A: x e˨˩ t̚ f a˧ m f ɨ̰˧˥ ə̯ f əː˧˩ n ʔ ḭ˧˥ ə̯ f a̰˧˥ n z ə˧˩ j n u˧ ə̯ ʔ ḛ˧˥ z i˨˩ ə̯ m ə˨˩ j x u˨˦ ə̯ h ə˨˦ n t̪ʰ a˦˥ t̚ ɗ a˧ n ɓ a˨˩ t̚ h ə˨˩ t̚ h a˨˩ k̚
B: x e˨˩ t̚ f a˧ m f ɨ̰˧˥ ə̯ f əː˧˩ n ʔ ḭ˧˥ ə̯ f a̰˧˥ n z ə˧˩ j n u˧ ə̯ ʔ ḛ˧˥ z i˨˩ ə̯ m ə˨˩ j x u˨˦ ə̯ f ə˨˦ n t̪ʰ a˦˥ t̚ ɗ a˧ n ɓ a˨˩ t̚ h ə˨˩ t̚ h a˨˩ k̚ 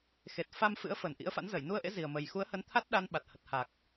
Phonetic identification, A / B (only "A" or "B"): A